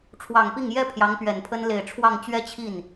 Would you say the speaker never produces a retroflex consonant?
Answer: no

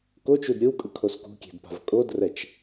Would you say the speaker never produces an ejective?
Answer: no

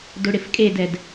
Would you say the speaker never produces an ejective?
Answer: no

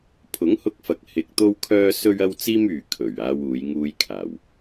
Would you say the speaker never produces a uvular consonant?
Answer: yes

